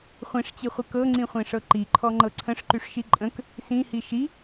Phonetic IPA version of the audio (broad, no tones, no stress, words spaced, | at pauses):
χʷĩʂt͡ɕiχʷə kɤŋ͡ǀĩχʷĩʂɤ ǃiǃʰɔŋ͡ǃɤ ǀʰə̃ʂǃyʂʃi ǃʼə̃k | sĩhi ʃi